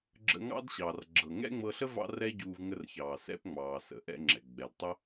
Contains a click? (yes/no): yes